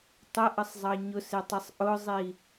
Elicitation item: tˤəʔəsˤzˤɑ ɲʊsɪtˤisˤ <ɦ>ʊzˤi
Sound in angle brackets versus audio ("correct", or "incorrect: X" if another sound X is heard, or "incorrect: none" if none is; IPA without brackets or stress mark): incorrect: ʔ